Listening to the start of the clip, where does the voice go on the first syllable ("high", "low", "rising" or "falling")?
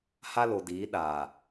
high